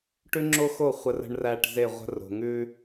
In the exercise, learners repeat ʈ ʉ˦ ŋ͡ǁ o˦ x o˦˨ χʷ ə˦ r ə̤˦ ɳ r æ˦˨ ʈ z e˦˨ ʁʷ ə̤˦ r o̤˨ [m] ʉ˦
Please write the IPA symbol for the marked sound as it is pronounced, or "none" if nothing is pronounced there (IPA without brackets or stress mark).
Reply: ŋ